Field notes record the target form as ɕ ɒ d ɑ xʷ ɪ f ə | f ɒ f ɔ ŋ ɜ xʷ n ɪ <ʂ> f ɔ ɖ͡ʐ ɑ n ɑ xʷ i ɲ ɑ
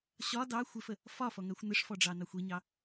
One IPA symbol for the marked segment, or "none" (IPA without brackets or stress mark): ʂ